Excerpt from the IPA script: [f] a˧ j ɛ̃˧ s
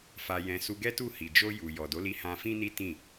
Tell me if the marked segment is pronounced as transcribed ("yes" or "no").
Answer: yes